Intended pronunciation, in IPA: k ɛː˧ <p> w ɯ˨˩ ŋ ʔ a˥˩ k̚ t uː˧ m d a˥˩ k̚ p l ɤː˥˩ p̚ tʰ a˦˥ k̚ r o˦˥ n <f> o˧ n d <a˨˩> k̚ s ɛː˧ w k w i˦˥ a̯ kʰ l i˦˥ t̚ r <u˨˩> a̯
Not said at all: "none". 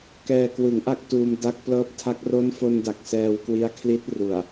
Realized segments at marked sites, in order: k, f, a˨˩, u˨˩

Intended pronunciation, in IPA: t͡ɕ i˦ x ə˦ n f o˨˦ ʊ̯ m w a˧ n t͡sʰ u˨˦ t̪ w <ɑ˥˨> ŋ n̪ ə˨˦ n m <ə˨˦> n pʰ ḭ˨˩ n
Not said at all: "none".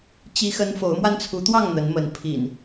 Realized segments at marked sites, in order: ɑ˥˨, ə˨˦

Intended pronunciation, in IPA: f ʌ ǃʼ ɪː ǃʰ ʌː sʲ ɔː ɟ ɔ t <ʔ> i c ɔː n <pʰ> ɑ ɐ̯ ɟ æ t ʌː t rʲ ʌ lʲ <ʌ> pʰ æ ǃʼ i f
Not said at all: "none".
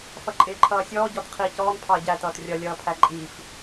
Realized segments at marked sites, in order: qʰ, pʰ, ʌː

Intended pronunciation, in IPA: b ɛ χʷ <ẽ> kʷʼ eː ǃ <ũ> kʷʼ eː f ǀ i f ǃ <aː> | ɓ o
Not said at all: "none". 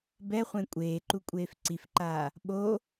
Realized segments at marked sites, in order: ẽ, u, aː

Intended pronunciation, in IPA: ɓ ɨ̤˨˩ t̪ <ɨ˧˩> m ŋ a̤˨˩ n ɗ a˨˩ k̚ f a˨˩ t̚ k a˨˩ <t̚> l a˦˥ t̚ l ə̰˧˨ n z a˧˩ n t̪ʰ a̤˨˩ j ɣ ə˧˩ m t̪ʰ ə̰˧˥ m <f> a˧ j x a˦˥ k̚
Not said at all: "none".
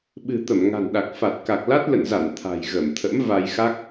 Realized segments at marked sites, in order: ə˧˩, k̚, v

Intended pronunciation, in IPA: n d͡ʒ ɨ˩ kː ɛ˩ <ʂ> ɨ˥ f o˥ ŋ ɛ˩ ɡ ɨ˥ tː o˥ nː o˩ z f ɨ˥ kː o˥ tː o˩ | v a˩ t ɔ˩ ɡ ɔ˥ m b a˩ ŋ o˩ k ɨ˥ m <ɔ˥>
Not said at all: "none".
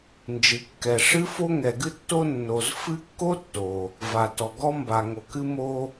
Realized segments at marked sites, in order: ʂ, o˥

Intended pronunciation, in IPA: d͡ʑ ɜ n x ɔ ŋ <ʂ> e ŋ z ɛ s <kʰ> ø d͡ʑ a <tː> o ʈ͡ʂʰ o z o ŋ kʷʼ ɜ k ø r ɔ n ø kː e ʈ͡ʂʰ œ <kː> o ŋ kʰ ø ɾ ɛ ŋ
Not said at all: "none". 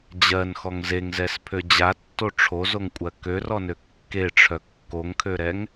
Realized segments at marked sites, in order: z, pʰ, tː, kː

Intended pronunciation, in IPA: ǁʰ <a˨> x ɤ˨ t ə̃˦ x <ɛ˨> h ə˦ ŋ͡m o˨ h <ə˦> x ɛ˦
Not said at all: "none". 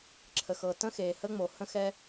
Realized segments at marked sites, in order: ə˨, e˨, ə̃˦

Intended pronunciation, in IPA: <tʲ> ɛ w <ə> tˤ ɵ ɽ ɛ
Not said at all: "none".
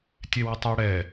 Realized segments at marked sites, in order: tʲ, ɨ

